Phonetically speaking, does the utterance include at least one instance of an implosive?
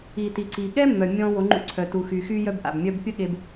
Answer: yes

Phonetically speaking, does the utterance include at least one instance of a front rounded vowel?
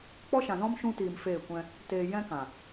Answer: no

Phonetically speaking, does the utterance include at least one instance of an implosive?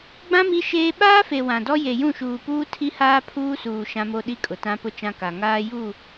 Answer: yes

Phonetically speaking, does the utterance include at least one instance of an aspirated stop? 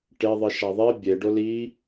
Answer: no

